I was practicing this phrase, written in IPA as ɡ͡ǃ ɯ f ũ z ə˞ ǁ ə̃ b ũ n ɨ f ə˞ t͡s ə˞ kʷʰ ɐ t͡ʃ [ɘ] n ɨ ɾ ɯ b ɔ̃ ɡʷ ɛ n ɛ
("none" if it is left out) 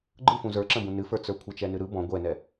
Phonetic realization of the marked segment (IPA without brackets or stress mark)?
ɛ